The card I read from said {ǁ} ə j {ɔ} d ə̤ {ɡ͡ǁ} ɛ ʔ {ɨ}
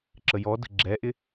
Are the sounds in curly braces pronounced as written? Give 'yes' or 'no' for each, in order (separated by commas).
yes, yes, yes, no